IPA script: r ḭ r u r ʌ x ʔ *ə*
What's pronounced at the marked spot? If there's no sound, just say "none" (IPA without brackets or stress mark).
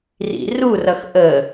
ə